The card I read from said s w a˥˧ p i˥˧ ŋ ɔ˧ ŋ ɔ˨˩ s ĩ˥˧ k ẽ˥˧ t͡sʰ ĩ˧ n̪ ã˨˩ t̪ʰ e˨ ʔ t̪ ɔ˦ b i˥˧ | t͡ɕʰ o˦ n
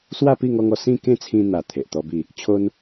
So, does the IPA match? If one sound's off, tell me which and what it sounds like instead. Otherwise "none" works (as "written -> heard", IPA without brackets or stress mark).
ã˨˩ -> a˨˩